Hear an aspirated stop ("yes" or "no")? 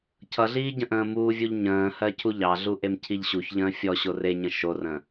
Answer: yes